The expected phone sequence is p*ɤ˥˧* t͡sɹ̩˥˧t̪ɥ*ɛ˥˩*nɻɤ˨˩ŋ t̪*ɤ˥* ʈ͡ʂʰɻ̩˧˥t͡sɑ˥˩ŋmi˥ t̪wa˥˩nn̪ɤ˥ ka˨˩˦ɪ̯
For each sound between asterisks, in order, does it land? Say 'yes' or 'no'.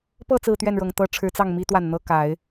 yes, yes, yes

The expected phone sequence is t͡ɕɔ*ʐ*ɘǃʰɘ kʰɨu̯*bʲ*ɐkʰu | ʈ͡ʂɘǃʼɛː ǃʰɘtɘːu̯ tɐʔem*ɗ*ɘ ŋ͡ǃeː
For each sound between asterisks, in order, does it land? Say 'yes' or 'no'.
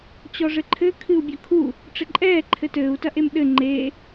yes, yes, yes

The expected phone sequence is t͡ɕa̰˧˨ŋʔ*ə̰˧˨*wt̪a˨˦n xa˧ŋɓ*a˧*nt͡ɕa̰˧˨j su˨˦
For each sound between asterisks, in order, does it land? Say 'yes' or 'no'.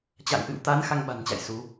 no, no

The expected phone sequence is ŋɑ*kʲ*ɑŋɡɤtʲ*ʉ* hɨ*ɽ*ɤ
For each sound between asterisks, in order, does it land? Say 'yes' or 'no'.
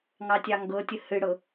no, no, yes

